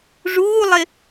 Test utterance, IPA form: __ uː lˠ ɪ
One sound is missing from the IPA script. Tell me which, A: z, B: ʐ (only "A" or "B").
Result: B